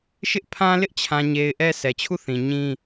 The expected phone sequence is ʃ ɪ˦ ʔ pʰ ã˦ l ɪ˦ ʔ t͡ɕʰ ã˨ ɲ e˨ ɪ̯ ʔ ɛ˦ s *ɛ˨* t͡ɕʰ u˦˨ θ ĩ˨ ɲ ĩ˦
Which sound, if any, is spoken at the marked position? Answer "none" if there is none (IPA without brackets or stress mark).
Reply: ɛ˨